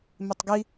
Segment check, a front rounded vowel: absent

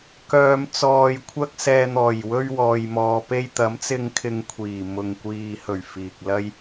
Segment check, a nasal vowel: absent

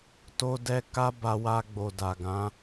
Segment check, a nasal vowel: present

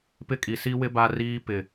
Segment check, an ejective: present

